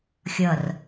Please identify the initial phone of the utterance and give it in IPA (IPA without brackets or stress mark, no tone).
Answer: xʲ